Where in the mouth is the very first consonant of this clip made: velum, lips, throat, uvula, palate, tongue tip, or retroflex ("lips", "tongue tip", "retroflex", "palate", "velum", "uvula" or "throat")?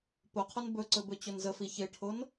lips